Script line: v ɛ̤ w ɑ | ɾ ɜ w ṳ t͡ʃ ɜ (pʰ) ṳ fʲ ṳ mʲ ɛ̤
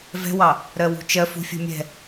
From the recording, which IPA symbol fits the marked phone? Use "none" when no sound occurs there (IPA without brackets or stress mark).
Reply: f